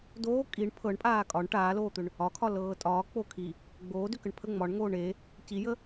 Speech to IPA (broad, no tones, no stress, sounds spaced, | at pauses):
d oː kʼ i ɳ pʰ ɤ ɳ pʼ aː kʼ ɒ ɳ ʈ aː l oː t̪ ʏ ɳ | ɒ kʰ ɒ l ɤː tʼ ɒː k͡p o kʰ i | ɡ͡b oː d ʏ k ə ɳ pʰ ə ŋ͡m ɒ ɳ ŋ oː ɳ e | c i j ə